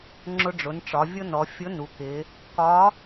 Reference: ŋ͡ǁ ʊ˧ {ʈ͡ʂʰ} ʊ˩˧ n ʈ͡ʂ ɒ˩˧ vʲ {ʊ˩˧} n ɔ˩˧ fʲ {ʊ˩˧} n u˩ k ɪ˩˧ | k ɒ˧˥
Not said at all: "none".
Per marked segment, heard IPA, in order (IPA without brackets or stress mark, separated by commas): ɖ͡ʐ, ʊ˥, ʊ˧˥